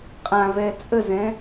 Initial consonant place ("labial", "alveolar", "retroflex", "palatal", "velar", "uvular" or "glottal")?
uvular